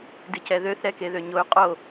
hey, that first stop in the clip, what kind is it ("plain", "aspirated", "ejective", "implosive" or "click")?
plain